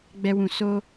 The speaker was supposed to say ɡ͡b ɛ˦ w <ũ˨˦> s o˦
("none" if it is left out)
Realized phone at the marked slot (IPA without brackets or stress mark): ũ˦